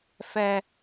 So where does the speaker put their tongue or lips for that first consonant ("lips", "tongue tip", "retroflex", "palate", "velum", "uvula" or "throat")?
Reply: lips